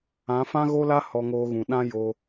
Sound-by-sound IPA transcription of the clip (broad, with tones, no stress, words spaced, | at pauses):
ã˨˦ fã˦ɣo˦la˦ hɔ˧ŋoː˧ɣũ˨ ɗã˦jo˧